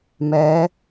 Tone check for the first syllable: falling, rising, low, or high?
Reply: rising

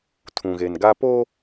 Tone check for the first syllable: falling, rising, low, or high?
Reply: low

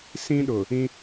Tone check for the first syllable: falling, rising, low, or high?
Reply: high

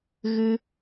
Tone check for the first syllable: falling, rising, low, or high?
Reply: high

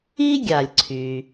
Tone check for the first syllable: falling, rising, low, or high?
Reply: high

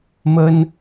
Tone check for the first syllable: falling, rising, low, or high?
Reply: high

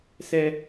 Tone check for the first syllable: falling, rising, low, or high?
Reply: high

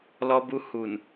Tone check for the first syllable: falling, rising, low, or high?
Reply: high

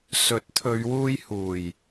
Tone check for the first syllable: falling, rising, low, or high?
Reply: rising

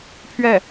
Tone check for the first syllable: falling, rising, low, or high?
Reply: falling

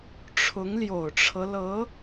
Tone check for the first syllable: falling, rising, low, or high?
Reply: rising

